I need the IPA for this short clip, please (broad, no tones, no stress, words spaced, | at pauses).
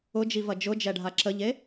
ʊd͡ʒivɐ d͡ʒʊd͡ʒɛɖʱa ǁəʎe